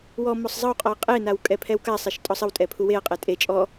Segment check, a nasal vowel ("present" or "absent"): absent